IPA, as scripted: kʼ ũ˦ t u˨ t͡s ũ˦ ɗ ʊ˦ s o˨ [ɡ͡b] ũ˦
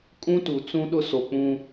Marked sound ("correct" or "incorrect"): incorrect